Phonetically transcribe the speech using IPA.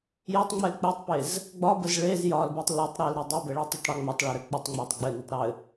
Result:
j ɘ tˤ ŋ͡m ɛ l k͡p ɘ tˤ p e z | ɡ͡b ɒ b ə z ɭ e z j ɒ l b ɛ tˤ l e tˤ ɾ ɛ l ɾ ə dˤ e b ɛ ɭ ə tˤ ɘ tˤ ɽ ɛ ŋ͡m ɒ tˤ ɭ ɒ ɾ ɘ k͡p ɘ tˤ ŋ͡m ɛ tˤ ɡ͡b ɘ n ɒ tˤ ɾ ɘ

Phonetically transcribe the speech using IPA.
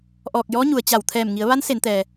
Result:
ʔ ɔː˧˩ k̚ j ɔː˧˥ ɲ u˩ ə̯ t͡ɕ a˧˩ w t̪ʰ ɛː˧˩ m ŋ i˩˧ ə̯ ʋ a˧˥ n s e˩˧ n t̪ ɛː˩

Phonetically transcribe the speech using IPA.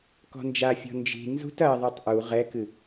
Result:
k ɔ̤ n d͡ʒ a fʲ ɔ̤ n d͡ʒ i̤ n z ṳ t ɐ ðˤ i tˤ ʔ u ʁ ɛ k ɨ

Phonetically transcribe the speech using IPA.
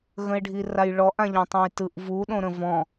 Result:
ɣ ə̃ e̯ ɖʱ i r a j ɭ ɔ ʔ ã ʎ ɔ̃ tˤ õ j t ɯ ʔ v u ɗ õ ɾ ə̃ v ɔ̃

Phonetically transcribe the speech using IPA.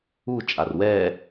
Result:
u t͡ʃʼ a r w ɛ

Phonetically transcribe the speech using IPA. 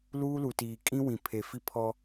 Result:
l uː˦ l u˨ t iː˨ kʼ ĩ˦ w ĩ˨ pʰ e˨ f i˦ pʰ ɔ˦

